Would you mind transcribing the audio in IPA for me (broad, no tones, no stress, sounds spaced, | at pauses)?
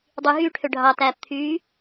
dˤ y ɦ yː ʈʰ ø ɖʱ ɑ t æː p t̪ʰ yː